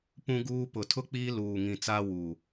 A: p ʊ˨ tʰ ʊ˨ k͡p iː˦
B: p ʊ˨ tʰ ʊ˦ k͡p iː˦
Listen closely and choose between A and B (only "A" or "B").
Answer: B